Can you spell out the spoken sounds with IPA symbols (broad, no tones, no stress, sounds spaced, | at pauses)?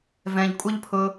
v ɛ̃ ʎ kʷʼ ʌ ʎ pʰ ʊ